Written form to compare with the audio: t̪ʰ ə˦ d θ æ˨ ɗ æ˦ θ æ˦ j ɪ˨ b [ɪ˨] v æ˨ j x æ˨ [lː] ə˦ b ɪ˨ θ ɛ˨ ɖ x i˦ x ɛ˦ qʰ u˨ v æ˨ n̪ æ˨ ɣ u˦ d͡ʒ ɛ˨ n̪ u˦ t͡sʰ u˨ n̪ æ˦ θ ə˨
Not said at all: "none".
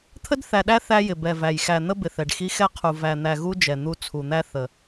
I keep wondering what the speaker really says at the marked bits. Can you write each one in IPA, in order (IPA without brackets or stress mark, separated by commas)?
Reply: ɛ˨, n̪